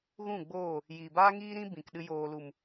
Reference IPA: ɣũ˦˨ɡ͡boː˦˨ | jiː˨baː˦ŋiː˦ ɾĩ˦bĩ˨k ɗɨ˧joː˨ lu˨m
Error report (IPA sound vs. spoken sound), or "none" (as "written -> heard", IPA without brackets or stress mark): none